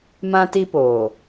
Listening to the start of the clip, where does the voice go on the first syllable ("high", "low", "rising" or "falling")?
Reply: high